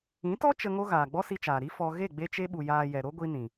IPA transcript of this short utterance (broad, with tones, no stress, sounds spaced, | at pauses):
ĩ˨˦ t ɔ˦ t͡ʃ ə˧ ŋ o˦ ɣ aː˨ ɡ͡b ɔ˦ s i˧ t͡ʃ aː˨ ɾ i˦ f ɔ˧ ɣ e˦˨ ɡ͡b e˧ t͡ʃ e˧ ɓ u˨ j aː˨ j ɛ˨ ɾ o˦ ɡʷ i˧ n ĩ˨